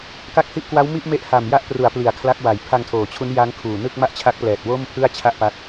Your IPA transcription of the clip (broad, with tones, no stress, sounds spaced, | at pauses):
k a˦˥ k̚ h i˦˥ ʔ k w a˦˥ w m i˥˩ ʔ m e˦˥ ʔ h a˨˩ m j a˦˥ ʔ p r u˩˦ a̯ p l i˨˩ a̯ kʰ l a˦˥ k̚ w a˨˩ j pʰ a˧ ŋ tʰ oː˩˦ t͡ɕʰ u˦˥ n j a˦˥ ŋ kʰ uː˨˩ n ɯ˥˩ k̚ m a˥˩ ʔ t͡ɕʰ a˦˥ k̚ p l ɛː˨˩ t̚ w o˥˩ m pʰ ɯ˥˩ a̯ t͡ɕʰ a˥˩ ʔ p a˦˥ t̚